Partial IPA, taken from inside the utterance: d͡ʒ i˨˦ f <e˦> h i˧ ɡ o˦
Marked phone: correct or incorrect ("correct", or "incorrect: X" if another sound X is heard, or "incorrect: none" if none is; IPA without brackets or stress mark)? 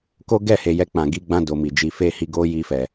correct